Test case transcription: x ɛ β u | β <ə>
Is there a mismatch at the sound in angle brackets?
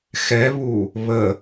no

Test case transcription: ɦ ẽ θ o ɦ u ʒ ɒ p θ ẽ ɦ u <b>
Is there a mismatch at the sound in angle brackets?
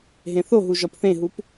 yes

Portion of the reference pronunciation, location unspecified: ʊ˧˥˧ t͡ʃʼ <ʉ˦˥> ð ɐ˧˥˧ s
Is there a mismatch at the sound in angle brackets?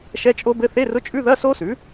yes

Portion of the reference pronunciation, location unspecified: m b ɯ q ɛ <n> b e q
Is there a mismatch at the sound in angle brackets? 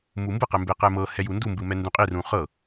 yes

